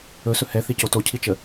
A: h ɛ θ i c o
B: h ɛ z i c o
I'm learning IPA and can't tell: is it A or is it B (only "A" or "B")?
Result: A